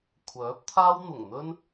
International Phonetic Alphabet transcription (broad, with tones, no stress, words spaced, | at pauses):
kʷʰœː˨˥p̚t̪ʰaː˥w n̪ʊ˨˩ŋn̪ɵ˥n